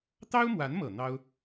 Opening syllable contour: high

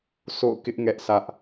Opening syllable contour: falling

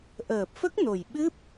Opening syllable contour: low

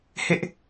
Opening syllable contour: high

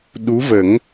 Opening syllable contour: rising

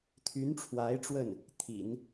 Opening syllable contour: rising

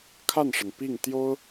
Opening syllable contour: falling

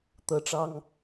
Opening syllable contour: high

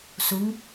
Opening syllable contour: rising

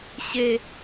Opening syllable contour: high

